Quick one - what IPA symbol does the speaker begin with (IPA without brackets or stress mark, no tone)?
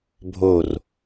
bʱ